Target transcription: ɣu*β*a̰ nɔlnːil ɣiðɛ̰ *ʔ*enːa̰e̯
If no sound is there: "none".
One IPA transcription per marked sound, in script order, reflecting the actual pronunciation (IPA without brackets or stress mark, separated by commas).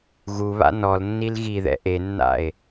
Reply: β, ʔ